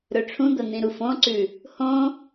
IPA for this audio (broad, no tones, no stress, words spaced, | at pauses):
ɾɵʈ͡ʂʰũd̪ɐ n̪ĩɾufõǀʉ | hõ